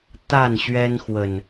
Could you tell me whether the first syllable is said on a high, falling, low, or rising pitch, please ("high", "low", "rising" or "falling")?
falling